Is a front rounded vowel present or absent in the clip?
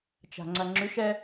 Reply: present